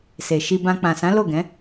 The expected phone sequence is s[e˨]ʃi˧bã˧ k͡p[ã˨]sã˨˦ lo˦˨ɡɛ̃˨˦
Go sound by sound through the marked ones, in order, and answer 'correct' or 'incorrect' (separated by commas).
correct, correct